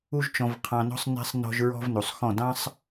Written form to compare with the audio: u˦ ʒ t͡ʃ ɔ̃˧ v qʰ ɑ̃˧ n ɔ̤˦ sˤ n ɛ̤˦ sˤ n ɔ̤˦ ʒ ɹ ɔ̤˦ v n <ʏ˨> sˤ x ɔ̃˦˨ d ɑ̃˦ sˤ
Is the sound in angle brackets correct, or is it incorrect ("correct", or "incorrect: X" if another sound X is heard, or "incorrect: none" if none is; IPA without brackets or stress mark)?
incorrect: u˨